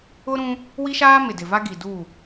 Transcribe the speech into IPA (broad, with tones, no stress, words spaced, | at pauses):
ʊ˦ɾũ˦ | wi˦ʃaː˦mɪ˨ dɪ˨va˦ɡi˨du˦˨